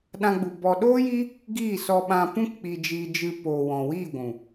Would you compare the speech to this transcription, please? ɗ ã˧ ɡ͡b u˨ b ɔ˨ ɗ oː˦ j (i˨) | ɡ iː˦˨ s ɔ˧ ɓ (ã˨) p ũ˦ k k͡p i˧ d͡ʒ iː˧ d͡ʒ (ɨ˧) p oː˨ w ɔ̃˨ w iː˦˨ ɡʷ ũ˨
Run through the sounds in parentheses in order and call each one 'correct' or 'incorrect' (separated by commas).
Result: incorrect, incorrect, correct